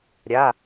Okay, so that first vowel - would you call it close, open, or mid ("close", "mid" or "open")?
open